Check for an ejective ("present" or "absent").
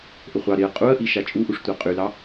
present